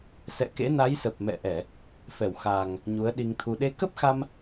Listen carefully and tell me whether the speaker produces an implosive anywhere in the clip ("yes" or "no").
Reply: yes